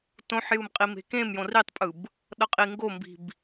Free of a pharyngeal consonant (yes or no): no